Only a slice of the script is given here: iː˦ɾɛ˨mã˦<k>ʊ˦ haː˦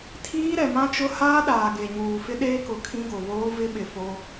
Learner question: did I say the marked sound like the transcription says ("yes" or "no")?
no